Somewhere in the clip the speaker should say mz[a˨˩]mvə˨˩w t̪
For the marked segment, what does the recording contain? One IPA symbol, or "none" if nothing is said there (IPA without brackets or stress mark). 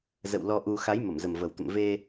ə˨˩